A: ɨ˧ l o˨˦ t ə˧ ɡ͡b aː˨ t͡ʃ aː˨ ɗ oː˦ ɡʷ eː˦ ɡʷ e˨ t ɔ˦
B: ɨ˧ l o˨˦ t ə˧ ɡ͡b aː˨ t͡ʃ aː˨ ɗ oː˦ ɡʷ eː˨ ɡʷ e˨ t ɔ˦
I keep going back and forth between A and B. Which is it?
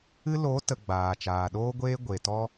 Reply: A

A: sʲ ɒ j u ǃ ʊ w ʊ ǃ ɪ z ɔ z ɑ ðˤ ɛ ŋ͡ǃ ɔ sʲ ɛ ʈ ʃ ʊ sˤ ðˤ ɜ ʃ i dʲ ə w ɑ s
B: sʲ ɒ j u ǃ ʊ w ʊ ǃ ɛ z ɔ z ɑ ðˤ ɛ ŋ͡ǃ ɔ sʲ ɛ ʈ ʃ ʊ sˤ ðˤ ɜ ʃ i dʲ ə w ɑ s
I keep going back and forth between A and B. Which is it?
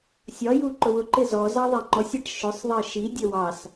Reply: A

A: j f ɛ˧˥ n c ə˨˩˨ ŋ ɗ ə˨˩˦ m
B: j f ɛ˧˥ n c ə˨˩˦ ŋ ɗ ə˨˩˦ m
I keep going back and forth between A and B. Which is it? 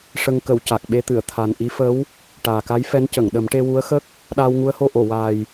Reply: A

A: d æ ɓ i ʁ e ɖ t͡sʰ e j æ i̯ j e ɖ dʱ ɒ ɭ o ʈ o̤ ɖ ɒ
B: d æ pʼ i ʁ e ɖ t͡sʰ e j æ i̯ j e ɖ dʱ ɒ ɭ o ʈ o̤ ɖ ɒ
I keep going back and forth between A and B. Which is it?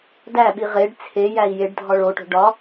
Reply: A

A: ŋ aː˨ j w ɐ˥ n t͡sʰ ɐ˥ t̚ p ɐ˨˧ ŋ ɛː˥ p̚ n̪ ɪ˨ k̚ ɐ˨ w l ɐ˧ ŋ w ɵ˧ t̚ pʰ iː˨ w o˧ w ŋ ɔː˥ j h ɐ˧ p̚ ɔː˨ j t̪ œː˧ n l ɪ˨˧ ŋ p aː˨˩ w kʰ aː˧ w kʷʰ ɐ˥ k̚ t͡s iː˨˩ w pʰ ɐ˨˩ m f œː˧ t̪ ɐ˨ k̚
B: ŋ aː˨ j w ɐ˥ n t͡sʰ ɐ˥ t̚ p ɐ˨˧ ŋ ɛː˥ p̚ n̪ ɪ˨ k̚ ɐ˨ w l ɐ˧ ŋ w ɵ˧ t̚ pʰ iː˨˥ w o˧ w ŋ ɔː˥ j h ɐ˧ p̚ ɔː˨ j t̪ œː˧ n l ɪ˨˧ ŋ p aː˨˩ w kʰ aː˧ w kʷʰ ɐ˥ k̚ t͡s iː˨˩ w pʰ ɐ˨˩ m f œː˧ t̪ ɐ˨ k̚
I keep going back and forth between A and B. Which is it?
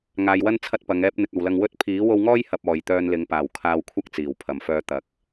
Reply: B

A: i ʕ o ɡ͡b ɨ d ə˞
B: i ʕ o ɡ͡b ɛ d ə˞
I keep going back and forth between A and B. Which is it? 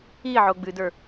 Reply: A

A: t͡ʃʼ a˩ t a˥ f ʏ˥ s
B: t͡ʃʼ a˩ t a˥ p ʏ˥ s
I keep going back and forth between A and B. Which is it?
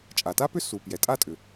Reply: B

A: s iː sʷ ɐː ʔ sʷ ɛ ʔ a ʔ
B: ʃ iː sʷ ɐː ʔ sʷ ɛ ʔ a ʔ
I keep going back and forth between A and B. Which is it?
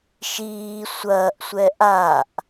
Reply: B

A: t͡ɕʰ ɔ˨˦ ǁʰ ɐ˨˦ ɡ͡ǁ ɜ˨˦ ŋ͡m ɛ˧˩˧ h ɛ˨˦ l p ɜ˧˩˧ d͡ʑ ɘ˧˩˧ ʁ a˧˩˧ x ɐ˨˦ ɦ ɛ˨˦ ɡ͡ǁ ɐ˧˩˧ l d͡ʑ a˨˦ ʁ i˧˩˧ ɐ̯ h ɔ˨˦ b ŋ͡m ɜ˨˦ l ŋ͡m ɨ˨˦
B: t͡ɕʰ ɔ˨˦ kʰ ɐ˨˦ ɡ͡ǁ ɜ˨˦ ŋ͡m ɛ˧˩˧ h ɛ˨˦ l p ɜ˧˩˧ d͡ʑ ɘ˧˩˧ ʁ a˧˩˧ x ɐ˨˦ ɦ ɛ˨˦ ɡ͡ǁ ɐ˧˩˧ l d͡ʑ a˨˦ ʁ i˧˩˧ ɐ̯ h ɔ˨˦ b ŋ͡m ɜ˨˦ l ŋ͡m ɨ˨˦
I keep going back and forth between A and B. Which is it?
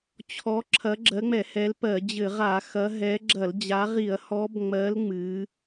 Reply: A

